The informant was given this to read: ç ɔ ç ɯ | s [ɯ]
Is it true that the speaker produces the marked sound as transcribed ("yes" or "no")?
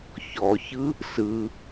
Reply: yes